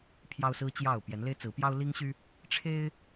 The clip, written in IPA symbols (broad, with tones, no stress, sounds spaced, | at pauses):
pʰ j ɑ˦ ʊ̯ s ɹ̩˦ t͡ɕ j ɑ˥˨ ʊ̯ p j ɛ˨˦ n l e˦ ɪ̯ t͡s ɹ̩˨˦ p j ɑ˦ ʊ̯ l i˦ ŋ ɕ y˦ | ʈ͡ʂʰ e˦ ɪ̯